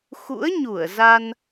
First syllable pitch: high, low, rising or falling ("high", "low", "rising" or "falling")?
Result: rising